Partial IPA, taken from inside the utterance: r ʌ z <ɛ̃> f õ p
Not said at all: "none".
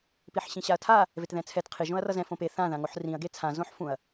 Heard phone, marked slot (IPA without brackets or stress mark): ɛ̃